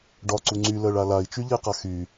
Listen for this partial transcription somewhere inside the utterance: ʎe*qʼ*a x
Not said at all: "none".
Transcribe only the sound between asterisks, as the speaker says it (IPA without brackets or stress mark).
q